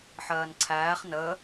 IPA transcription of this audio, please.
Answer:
ħ ɜː n ǀʰ æː χ n ə

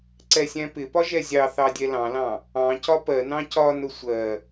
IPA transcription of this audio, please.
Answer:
ǀ ɛ sʲ æ̃ p ɪ p ɒ ʒ ɛ zʲ ɑ θ ɑ dʲ ɛ l ɑ̃ l ɑ̃ | ɑ̃ c ɒ p ɜ n ɑ̃ c ɒ n ʊ sʷ ɜ

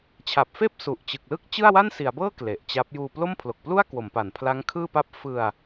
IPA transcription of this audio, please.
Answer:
t͡ɕʰ a˨˩ p̚ f eː˥˩ p̚ s u˨˩ ʔ t͡ɕ ɯ˨˩ k̚ l ɯ˥˩ k̚ t͡ɕ ɯ˥˩ a̯ w a˥˩ n s i˩˦ a̯ b ɤː˥˩ k l e˨˩ ʔ t͡ɕ a˦˥ p̚ j uː˧ p l o˥˩ m pʰ l o˨˩ k̚ p l u˥˩ a̯ k w o˩˦ m p a˩˦ n pʰ l a˦˥ ŋ kʰ ɯː˥˩ p a˥˩ p̚ f ɯ˧ a̯

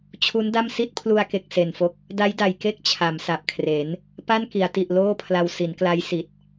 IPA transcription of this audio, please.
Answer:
t͡ɕʰ u˦˥ n d a˥˩ m s i˥˩ t̚ pʰ l u˧ a̯ k e˨˩ k̚ s e˨˩ n f o˦˥ k̚ | d a˦˥ j d a˨˩ j k e˥˩ k̚ t͡ɕʰ a˩˦ m s a˨˩ p̚ kʰ r e˩˦ n | p a˥˩ n k i˩˦ a̯ t i˨˩ ʔ l oː˥˩ pʰ l a˧ w s i˩˦ n k l a˦˥ j s i˨˩ t̚

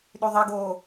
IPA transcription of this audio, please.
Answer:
ɗ y ðˤ i ɡ oː

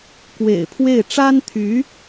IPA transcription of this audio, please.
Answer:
k w ḛ˨˩ ɪ̯ pʰ w e˥˩ ɪ̯ ʈ͡ʂ a˥ n t̪ʰ y˧˥

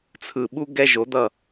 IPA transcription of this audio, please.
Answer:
t͡sʰ ɯ˨ ɓ u˧ ɡ ɛ˦ ʒ o˨˦ d̪ ʌ˦˨

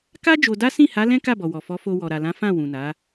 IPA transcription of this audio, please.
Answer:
k a˦ d͡ʒ o˧ d a˦ s ĩ˦˨ h a˨˦ l ɛ̃˦ k a˦˨ b ɔ˨ w ɔ˨ f ɔ˨˦ f o˧ w ɔ˨ ɾ a˨ l ã˨˦ f ã˦˨ w ũ˨ n a˨˦

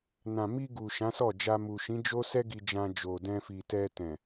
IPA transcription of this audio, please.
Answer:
n ã˨ m i˧ ɡ u˨ ʃ ã˨˦ s ɔ˦˨ d͡ʒ a˧ m u˨ ʃ ĩ˨˦ d͡ʒ o˦ s ɛ˦ ɡ i˧ d͡ʒ ã˧ d͡ʒ o˨ d ɛ̃˧ f i˨ t ɛ˧ t ɛ̃˨

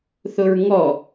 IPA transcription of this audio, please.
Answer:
θ ʊ ɹ ŋ ɔ

